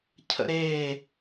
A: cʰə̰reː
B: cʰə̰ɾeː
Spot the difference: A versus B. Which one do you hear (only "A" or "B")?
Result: B